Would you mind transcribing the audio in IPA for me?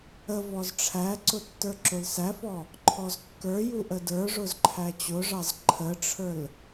ə v ɔ z ʈ͡ʂʰ æ ǀ ʊ tː ə˞ ǁ ʊ l s æ f ɔ | ǃʰ ɔ z kː ə˞ j u ʔ ə d ə˞ ʐ ʊ z ǃʰ æ t͡ɕ ʊ ʐ ɑ z ǃʰ ə ʈ͡ʂʰ ə˞ l

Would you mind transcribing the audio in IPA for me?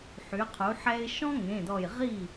ħ y˩˧ qʰ u˩˧ ħ ɛ˧ ɪ̯ ʃ ɔ̃˥ ŋ ẽ˩˧˩ d ɔ˧˩ j ʁ i˥˩

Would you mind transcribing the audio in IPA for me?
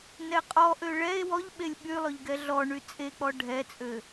n ɛ qʼ ɔ ʔ ø ɭ ɛ e̯ w ɔ ʎ ɓ e lʲ ɓ y lˠ ø ʎ ɡ ɛ ɮ ɔ ɳ y t͡sʼ e k͡p ɔ ɖʱ ɛ t͡sʼ ø

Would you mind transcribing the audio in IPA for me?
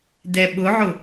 d ɛ ɓ ʊ ʕ ʊ

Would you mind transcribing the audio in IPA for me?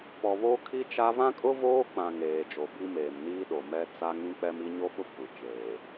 p ɔ˨ β o˦ kʰ i˦ t͡ʃ a˦ v ã˦ kʼ ʊ˦ v oː˦ k͡p ã˨ ŋ eː˨ d͡ʒ o˨ b i˦ m eː˨ m n iː˦ ɗ o˨ m ɛ˦ t͡s a˦ ŋ ĩ˦ k͡p ɛ˦ m i˦ ɲ o˦ ɓ ʊ˦ kʷ i˨ t͡ʃ eː˨

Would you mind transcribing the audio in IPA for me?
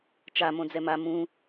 t͡ʃ a m õ d͡z ɛ m a m ũ

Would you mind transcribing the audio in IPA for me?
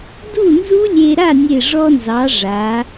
d u˥˩ n z u˦˥ lʲ e˧ ɾ a˥˩ nʲ e˧˩ ʐ ɔ˧ n z ɑ˩˧ ʐ a˩˧

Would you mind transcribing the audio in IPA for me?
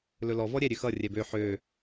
l ɵ l ɔ v ɔ ɾʲ ɛ ɾʲ ø x ʌ rʲ ɛ b ø ħ ø

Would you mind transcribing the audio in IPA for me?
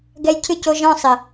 ɡ ɛ˧ j cʰ ɨ˦˨ c o˧ ʒ ɔ̃˦˨ sˤ ɪ˨

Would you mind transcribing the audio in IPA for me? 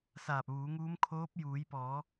s aː˧˩ p̚ ʋ uː˩˧ ŋ uː˧˥ m kʰ oː˧˥ p̚ j uː˩˧ j p ɔː˩˧

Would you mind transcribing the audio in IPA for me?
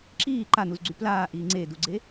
ǁ iː ǃ a n u z ɡ͡ǀ y p l aː ʔ iː ŋ͡ǀ e d u ɡ͡ǀ e

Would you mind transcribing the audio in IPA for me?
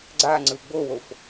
ɡ͡ǀ a ŋ͡ǀ ɯ ɡ͡b o w o f

